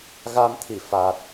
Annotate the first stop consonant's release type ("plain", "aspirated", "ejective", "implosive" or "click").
aspirated